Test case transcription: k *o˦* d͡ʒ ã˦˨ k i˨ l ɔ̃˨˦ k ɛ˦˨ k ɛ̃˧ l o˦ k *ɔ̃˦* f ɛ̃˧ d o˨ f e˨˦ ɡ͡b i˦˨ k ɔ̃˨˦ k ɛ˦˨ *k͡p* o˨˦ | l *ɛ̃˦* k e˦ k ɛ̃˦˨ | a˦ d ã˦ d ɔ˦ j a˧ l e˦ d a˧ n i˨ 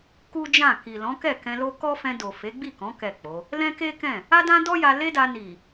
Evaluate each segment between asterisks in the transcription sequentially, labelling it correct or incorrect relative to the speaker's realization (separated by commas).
incorrect, incorrect, correct, correct